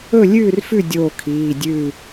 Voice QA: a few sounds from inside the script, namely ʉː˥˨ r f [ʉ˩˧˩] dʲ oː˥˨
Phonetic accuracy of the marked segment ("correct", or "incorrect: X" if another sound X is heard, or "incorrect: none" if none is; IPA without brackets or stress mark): incorrect: ʉ˥˨